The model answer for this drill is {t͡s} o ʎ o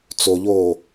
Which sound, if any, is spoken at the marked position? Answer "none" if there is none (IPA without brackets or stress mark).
t͡s